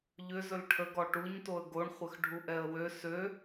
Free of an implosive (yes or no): yes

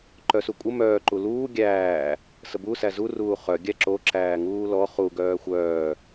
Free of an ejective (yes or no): no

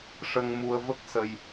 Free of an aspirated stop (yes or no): yes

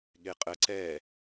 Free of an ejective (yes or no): no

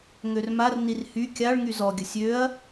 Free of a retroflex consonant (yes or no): no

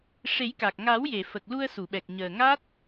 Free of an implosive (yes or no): no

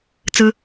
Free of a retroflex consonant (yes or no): yes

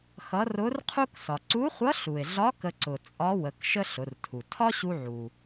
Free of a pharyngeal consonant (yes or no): no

